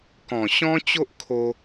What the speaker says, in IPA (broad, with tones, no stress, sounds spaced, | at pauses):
k ɔ̃˨˩ ɕ ɔ̃˦ t͡ɕ o˦ ʔ kʰ o˧